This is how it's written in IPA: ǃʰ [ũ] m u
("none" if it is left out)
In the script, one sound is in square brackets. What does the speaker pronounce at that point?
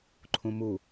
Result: ũ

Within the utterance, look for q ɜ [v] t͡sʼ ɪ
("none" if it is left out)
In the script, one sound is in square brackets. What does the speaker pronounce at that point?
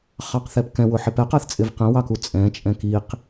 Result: θ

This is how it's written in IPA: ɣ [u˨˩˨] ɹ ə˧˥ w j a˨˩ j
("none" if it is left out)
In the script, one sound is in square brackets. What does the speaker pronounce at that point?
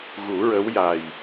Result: u˨˩˦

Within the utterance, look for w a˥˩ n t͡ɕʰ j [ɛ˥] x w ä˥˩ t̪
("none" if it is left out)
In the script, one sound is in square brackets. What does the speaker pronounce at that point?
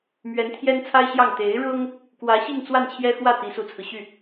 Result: ɛ˥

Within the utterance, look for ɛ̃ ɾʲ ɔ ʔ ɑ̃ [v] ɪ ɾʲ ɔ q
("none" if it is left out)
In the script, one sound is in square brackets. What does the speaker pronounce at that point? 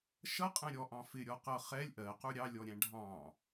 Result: f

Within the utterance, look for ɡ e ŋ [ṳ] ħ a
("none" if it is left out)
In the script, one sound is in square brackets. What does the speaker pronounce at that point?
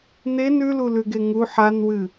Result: u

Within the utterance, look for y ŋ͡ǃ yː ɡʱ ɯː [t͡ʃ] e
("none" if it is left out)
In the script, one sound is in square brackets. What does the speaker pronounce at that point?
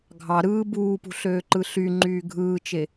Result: t͡ʃ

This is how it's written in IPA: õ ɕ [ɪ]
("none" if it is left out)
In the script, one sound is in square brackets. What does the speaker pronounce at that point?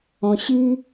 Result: i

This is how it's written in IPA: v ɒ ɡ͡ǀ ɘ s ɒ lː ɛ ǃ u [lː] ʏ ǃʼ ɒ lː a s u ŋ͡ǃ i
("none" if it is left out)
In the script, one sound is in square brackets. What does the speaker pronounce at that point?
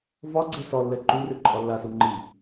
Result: r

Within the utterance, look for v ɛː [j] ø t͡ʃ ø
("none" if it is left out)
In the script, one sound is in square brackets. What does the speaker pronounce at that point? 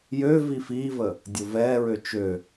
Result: ɹ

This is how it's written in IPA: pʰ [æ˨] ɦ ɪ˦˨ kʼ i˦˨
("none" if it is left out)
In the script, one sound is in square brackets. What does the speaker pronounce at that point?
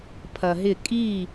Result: ɐ˨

